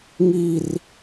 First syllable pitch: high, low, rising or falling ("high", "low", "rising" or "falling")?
high